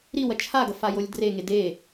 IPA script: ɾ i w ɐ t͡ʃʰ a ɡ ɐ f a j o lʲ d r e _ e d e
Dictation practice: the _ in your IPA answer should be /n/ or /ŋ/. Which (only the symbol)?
ŋ